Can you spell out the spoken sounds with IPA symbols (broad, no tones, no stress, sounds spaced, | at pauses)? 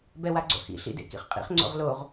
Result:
b ɛ w a ɡ͡ǀ o̰ h ḭ ɬ ḭ d ḛ k ḭ χ qʼ ḭ χ ŋ͡ǀ o̰ ʁ l o ʁ